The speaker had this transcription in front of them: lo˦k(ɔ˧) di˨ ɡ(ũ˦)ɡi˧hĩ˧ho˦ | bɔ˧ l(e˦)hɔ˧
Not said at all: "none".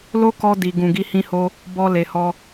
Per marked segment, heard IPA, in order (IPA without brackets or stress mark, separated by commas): ɔ˧, ũ˨, e˨